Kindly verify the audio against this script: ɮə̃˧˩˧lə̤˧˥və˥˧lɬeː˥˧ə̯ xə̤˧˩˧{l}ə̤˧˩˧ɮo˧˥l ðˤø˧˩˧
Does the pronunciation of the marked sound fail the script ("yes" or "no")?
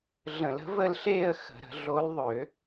yes